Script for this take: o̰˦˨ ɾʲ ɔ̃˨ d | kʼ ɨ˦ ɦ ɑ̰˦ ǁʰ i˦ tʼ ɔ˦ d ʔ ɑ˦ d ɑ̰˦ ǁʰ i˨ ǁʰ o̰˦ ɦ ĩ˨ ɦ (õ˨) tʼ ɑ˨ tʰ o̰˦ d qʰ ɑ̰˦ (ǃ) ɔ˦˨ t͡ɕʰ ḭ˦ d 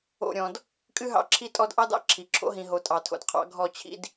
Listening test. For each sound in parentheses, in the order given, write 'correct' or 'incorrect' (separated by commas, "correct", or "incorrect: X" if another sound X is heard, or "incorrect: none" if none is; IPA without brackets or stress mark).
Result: incorrect: o˨, incorrect: ɡʱ